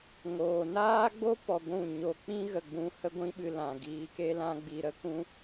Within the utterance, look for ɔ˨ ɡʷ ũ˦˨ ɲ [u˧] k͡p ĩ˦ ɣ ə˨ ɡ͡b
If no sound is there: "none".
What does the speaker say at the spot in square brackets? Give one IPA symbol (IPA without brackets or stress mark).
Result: o˧